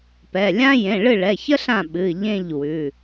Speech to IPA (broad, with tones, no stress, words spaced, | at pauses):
pɛ˩˧˩lʲã˥ jẽ˩˧˩ɭɨ˥˨ɭɛ˩˧˩çə˥ ɬã˥˨ ɓɨ˩˧˩ʎẽ˥˨ʎ wʉ˩˧˩